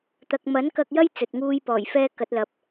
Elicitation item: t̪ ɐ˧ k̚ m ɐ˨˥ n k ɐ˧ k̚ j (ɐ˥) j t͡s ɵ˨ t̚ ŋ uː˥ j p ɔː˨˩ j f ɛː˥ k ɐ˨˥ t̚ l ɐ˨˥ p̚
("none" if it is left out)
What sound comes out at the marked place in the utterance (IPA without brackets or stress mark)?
ɐ˥